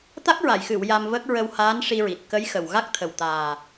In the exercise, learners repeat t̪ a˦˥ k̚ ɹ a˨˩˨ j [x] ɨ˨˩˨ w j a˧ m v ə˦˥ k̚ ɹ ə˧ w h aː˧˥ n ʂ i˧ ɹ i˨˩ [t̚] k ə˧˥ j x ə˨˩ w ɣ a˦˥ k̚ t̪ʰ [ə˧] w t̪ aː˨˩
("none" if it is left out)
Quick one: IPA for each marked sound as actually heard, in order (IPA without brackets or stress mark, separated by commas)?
x, t̚, ə˨˩